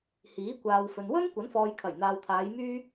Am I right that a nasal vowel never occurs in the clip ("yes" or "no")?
yes